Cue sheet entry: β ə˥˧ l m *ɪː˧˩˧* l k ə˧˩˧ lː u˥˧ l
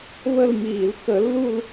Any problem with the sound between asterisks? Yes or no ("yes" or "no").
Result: yes